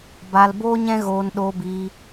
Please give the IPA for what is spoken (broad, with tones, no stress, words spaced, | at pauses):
ba˧lboː˦ɲɛ̃˦ɣoː˧n ɗoː˧biː˧